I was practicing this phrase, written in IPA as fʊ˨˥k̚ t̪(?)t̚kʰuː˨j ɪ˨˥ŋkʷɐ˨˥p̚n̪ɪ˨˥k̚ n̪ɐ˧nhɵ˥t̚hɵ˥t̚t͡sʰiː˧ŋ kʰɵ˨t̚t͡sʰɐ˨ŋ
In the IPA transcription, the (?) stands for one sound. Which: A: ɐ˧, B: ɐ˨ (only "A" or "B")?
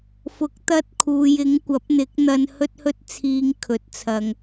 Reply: A